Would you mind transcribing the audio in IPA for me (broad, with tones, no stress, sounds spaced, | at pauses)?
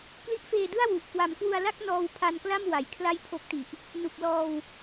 k l i˦˥ ʔ f eː˧ d ɯ˥˩ a̯ w u˨˩ ʔ k w a˩˦ m k w u˧ a̯ l a˥˩ k̚ n ɔː˧ w pʰ a˧ n k l a˥˩ m w a˨˩ j kʰ l a˥˩ j pʰ o˦˥ k̚ t i˨˩ ʔ | n u˨˩ k̚ l ɔː˧ w